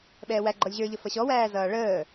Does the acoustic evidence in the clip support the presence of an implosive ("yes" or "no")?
yes